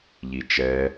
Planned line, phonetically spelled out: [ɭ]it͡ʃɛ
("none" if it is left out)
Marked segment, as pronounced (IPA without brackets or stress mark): ʎ